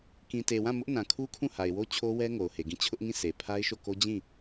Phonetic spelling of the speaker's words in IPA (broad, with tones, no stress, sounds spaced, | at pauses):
k ĩ˨ t e˨ w ã˦˨ m ʊ˦ ʔ n ã˨ kʰ u˦ kʰ ũ˦˨ h a˨ ɪ̯ w o˦ t͡ɕʰ o˦ w ɛ˦ ŋ o˨ ʊ̯ h e˨ ɡ ĩ˦˨ t͡ɕʰ ʊ˦ ʔ ŋ ĩ˦˨ sʰ e˨ pʰ a˦ ɪ̯ ʃ o˦˨ k o˦ d͡ʑ ĩ˦˨